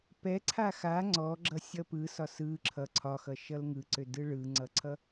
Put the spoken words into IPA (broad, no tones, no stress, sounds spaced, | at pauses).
p ɛ ǀʰ a x a ŋ͡ǀ ɔ ɡ͡ǁ ʌ sʲ ʌ p ɯ s ɒ s ɯ ǁʰ ʌ ǀʰ ɒ x ʌ ʃ ʌ l ŋ ɯ ǀ ø d ɯ ɭ ɯ ŋ͡ǀ ʌ ǀʰ ʌ